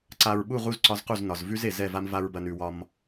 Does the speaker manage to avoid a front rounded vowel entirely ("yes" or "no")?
yes